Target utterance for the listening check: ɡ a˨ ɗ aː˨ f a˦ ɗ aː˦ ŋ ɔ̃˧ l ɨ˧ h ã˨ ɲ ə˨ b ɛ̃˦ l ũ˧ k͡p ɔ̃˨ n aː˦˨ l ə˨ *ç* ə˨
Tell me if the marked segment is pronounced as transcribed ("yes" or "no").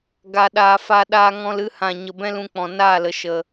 no